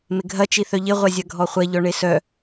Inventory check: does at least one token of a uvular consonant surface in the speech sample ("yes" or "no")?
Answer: yes